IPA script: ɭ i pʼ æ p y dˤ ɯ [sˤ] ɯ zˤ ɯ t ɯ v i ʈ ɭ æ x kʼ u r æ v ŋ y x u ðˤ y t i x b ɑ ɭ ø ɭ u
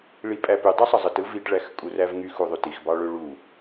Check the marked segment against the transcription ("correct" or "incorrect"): correct